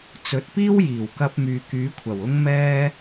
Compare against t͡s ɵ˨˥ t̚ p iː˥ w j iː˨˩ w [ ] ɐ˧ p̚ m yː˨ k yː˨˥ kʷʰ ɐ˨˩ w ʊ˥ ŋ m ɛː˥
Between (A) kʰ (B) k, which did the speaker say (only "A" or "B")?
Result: B